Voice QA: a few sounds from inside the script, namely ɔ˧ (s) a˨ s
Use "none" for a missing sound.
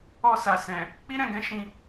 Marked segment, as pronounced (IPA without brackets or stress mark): s